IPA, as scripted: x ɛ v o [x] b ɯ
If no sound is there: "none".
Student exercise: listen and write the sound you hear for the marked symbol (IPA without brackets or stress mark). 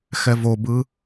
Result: none